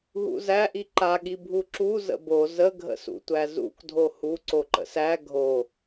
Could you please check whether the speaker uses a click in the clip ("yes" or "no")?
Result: yes